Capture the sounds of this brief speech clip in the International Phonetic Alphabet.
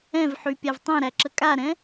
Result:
ɛ̃ v ħ y pʲ a v tˤ ɛ̃ ɾ æ ǁ ə kʼ a ɾ ɛ̃

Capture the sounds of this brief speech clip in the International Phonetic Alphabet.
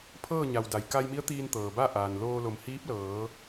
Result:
pʰ ɤː˥˨ ɲ a˩ w d a˩ j k a˧ j m i˧˥ ə̯ t̪ iː˧ n t̪ ɤː˩ b a˥˨ ʔ aː˩ n l oː˧ l o˩˧ m h iː˧˥ p̚ l ɤː˩˧

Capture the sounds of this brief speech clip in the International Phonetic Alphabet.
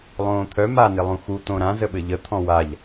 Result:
lˠ õː t̪ʰ œ m a n ɪ lˠ ũ x u t̪ õ ɾ ã z ə ɓ ɘ ʎ ə t̪ʰ ɔ̃ w a ʎ

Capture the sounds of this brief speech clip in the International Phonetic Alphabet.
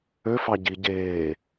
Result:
ø f ɑ ɟ i ɟ eː

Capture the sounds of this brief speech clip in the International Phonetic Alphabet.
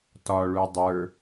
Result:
t ɒ ɭ u dˤ ə˞

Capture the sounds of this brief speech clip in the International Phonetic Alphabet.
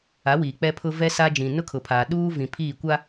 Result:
a˨˦ w iː˨ k͡p ɛ˦ pʰ ʊ˦ v ɛ˦ s a˦ d͡ʒ ĩ˨ n ʊ˦ kʰ ʊ˨ pʰ aː˨ ɗ uː˦ v ĩ˨ pʰ iː˦˨ kʷ a˦

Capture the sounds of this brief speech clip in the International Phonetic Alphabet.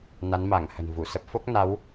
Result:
n a˨˦ n m a˧˩ ŋ h ə̤˨˩ n v u˧˩ s ə˦˥ p̚ f o˦˥ k̚ n a˨˦ w

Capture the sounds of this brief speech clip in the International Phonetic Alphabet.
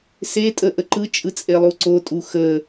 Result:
s e tʼ ə ʔ ə ǃ ɯ t͡ʃʼ ɯ t͡sʼ e lˠ u ǀ o tʼ u x ə

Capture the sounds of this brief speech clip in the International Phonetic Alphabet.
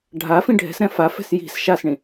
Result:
ɖʱ a f ĩ ɖʱ ɛ̤ s ɾ ɛ̃ f a f ɛ̤ s j i̤ s ʃ a s ɳ ĩ

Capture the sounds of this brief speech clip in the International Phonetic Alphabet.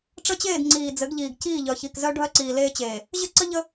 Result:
ʈ͡ʂ ə˦ t͡ɕ eː˦˨ d ŋ͡ǀ iː˨ d͡z ɘ˨˦ ɡ ʎ iː˨ ɡ c iː˦˨ ʎ œ˨ ç i˨ k z œ˦ ɖʱ œ˦ ǀ iː˨ l eː˦ t͡ɕ eː˨ | ʑ ɘ˦ ǀ ə˦ ʎ ə˦

